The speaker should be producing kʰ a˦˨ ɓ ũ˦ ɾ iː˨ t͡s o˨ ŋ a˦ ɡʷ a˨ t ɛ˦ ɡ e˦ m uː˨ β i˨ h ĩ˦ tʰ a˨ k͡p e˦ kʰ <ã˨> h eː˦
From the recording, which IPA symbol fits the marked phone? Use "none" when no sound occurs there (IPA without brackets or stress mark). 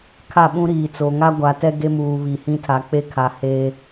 a˨